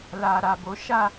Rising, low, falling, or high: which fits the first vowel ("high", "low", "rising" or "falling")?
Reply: low